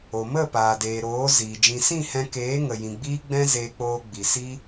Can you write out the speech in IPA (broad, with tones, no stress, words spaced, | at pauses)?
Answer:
o˨mə˦˨ paː˨deː˨ ɾoː˨˦ ziː˨ d͡ʒĩ˨sĩ˦˨ hɛ̃˧keː˨˦ŋə˨ jĩ˨ɡ͡biː˦ɡ͡bɛ̃˦ zeː˧k͡poː˧ ɡ͡bi˨si˦